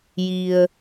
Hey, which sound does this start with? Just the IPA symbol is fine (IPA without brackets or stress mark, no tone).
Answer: j